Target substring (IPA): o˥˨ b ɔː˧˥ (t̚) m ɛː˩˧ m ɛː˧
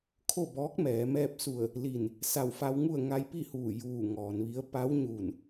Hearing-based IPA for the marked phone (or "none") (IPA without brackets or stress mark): k̚